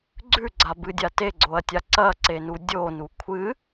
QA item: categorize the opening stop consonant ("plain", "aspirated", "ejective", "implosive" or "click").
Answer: click